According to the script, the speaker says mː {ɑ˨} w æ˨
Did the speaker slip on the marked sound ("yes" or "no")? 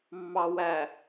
no